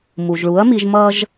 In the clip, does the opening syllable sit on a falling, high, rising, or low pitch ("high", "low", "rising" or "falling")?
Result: low